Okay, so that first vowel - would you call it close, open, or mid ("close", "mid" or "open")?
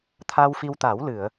open